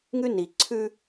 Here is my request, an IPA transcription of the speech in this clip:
ŋʉ˦ ni˨ ǀʰʉ˦

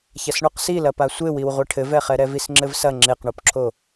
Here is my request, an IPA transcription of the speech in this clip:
çɐsɳuqsilɐ pasʷewiw ʁʷiʈʰɘvɛχɛ ɾɛvisŋ͡ǁɘvsɐ ŋ͡ǁeqɳopǁʰo

